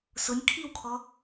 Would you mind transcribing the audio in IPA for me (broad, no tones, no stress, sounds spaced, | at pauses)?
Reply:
s ʊ nʲ kʰ i w kʰ ɔ